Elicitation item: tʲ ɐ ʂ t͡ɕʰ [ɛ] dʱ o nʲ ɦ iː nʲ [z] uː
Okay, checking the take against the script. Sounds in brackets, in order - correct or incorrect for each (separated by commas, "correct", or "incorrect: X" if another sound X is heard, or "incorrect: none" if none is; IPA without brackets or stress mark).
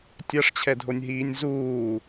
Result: correct, correct